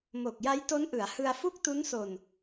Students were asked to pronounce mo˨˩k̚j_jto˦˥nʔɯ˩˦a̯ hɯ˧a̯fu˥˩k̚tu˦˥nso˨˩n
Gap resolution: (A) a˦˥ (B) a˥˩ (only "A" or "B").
A